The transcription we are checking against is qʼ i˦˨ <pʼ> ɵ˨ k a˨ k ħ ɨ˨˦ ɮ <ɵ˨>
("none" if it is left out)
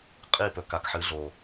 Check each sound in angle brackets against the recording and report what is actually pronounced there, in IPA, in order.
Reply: p, o˨

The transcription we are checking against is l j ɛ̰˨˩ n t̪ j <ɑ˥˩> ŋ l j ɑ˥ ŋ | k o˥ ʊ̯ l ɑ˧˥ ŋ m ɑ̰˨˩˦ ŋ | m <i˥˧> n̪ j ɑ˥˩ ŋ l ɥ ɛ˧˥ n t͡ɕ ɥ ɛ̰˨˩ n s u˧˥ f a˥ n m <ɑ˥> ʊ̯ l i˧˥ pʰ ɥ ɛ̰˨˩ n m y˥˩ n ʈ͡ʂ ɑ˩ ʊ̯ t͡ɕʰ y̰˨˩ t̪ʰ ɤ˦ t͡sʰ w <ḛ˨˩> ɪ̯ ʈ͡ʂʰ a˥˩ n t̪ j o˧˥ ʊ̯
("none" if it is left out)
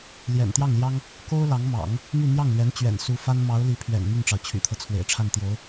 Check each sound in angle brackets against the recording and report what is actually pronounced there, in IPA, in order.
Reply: ɑ˥˩, y˥˧, ɑ˧˥, ḛ˨˩

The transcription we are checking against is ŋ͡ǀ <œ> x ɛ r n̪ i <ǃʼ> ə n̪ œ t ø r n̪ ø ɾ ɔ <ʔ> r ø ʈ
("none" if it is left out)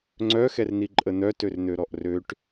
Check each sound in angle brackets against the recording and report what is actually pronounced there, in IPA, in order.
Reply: œ, ǃʼ, ʔ

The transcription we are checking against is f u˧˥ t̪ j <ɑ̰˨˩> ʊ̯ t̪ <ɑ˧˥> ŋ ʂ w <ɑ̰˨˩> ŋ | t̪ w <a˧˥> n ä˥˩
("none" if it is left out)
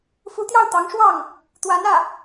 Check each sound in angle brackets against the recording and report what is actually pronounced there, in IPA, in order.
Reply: ɑ˥˩, ɑ˧˥, ɑ˥˩, a˧˥

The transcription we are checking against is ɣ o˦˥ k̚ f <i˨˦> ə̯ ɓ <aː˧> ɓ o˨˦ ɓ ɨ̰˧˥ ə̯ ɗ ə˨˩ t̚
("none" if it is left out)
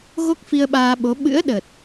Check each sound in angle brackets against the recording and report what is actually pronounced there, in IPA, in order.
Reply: i˧, aː˧

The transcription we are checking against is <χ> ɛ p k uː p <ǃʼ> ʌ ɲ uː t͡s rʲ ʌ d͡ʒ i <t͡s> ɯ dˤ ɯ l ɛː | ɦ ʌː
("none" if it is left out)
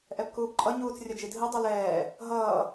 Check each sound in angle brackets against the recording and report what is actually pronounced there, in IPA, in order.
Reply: ʔ, ǃʼ, dʱ

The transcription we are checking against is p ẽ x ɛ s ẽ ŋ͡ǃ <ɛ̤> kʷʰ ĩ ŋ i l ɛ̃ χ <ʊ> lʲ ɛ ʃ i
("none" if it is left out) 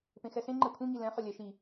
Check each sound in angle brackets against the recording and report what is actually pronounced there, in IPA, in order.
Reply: ɛ, ʊ

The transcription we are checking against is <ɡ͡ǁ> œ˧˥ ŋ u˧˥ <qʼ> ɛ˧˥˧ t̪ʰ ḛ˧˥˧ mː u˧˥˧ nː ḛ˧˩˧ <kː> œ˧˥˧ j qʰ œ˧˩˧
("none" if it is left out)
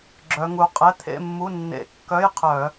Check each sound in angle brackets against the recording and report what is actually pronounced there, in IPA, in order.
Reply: ɡ͡ǁ, qʼ, kː

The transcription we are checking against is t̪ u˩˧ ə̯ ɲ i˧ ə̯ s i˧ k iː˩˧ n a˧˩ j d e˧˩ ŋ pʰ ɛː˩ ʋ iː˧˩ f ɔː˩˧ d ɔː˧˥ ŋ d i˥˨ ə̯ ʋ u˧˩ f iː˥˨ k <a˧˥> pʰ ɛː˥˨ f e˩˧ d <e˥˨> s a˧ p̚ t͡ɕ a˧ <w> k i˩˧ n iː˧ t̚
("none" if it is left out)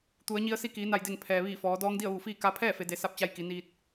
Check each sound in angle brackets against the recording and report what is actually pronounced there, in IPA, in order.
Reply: a˧˥, e˩˧, j

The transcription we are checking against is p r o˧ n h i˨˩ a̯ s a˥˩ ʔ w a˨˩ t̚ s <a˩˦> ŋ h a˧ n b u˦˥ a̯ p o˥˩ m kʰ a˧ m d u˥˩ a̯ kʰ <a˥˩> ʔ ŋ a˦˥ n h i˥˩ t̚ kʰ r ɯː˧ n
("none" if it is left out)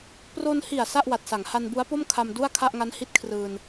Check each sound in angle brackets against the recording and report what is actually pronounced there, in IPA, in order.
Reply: a˩˦, a˥˩

